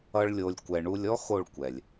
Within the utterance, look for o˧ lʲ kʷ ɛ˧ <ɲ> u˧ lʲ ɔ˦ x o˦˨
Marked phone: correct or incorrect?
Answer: incorrect